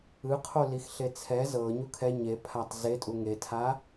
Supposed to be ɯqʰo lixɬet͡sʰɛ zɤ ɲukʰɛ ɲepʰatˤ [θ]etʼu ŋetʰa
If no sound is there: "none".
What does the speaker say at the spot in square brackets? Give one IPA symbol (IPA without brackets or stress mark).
z